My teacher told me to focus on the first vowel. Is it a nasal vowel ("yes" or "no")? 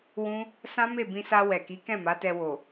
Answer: yes